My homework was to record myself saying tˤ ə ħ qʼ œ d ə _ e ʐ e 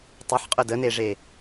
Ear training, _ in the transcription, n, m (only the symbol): n